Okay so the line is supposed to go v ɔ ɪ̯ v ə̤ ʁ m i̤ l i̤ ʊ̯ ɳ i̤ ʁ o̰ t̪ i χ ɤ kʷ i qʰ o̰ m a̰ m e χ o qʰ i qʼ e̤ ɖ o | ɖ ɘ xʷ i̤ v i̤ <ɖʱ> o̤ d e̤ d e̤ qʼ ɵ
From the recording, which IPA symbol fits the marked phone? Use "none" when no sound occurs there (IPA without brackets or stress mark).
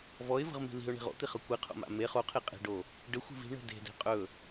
ɳ